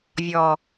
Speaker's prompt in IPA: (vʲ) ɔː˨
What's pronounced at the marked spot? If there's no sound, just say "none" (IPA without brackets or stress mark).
vʲ